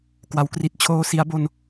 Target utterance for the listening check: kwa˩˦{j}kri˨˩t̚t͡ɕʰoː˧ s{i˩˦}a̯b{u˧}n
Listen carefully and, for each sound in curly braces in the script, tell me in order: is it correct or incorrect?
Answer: incorrect, correct, incorrect

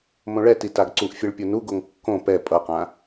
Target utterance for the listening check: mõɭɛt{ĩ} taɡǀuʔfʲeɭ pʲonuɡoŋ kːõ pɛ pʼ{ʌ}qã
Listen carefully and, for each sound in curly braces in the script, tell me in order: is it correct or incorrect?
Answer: incorrect, correct

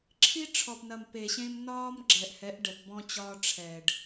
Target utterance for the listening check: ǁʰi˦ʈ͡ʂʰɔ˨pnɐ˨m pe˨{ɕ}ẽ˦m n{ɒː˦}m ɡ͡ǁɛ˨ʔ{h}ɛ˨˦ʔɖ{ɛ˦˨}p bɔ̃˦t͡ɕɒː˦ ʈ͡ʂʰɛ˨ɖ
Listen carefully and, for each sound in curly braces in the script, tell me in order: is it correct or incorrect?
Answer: correct, correct, correct, incorrect

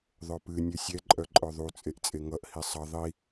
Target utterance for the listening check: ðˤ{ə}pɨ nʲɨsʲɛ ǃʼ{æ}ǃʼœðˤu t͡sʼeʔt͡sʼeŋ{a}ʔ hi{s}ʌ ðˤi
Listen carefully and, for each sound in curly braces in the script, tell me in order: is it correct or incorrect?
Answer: incorrect, incorrect, incorrect, incorrect

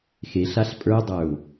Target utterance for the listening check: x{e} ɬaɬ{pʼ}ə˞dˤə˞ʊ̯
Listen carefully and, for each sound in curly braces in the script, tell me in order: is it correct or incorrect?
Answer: correct, correct

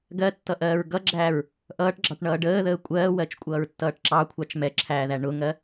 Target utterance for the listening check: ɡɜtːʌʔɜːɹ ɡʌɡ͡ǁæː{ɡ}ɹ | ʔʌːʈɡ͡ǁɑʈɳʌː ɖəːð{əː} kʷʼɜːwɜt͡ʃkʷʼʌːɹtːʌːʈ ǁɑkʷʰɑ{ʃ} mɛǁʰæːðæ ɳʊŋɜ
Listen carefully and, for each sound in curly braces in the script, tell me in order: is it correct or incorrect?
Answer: incorrect, correct, incorrect

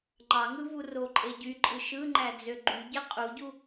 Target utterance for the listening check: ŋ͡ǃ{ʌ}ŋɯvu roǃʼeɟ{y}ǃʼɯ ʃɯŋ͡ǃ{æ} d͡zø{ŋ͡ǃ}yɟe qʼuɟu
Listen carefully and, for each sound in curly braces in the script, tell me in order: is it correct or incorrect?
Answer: incorrect, correct, correct, incorrect

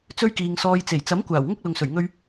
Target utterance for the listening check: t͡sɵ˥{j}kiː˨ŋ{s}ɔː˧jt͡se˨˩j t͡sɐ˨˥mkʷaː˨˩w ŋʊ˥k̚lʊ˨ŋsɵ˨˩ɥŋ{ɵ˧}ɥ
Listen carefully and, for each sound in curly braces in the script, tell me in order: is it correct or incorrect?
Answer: incorrect, correct, correct

